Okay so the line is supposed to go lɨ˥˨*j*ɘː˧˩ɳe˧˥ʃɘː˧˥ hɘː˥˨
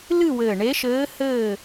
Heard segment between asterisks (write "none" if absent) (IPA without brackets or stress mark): w